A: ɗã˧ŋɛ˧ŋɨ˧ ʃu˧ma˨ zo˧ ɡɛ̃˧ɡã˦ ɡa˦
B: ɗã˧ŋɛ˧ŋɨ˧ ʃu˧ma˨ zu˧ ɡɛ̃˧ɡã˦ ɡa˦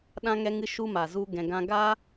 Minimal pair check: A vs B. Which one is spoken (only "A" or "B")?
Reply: B